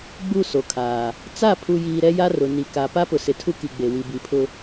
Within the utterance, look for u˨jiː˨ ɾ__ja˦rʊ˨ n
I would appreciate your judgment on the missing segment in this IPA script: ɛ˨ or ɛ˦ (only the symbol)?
ɛ˦